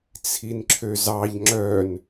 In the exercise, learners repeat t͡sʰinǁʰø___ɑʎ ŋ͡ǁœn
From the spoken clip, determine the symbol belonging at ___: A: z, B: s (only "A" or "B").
A